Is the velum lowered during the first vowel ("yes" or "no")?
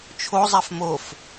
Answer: no